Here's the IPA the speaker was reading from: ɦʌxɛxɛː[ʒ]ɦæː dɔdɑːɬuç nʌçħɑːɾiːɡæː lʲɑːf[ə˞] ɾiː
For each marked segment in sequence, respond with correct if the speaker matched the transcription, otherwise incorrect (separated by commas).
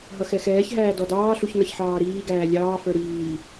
incorrect, correct